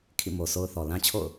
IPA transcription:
kʰ ḭ˦˨ m o˨ s o˦ ʊ̯ θ ɔ˨ l ã˦ t͡ɕʰ o̰˦˨ ʊ̯

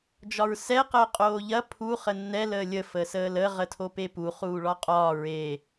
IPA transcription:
d͡ʒ ɒ ɹ s ɛ q əː qʼ oː ʎ ɐ pʰ u χ ə nː ɛ l əː lʲ ə f əː s əː l ə ʁ ə tʰ o p e p u χ uː ɭ ɒ qʼ ɒː ɹ e

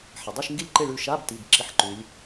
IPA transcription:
ħ ɐ˩ dˤ i˦˨ ʃ ŋ ɡ i˦˨ lʲ ǃ e˦˨ ɭ ʉ˦˨ ʃ a˧˥˧ b t i˩˧˩ b ǁ i˧˥˧ ħ ǃ ʉ˩˧ lʲ

